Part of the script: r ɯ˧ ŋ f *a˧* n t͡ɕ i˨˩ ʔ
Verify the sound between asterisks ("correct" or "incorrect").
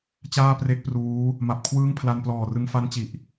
incorrect